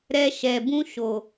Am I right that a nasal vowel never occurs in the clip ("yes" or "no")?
no